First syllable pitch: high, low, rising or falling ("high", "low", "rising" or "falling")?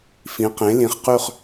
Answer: rising